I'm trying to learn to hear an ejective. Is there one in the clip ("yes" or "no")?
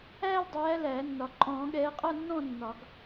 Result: yes